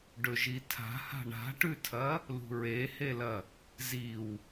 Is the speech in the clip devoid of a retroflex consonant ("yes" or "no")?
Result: no